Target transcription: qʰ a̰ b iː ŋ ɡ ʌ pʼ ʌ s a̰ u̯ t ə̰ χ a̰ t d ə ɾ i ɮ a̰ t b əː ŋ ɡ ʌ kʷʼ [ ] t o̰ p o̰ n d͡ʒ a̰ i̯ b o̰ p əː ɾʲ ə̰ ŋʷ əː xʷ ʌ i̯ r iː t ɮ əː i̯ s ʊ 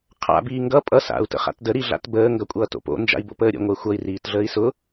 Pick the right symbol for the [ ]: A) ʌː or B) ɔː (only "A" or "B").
A